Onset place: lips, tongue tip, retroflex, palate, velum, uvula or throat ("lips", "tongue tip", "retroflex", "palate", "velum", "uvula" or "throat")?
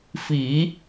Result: lips